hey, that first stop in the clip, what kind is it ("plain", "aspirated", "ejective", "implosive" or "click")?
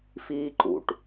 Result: click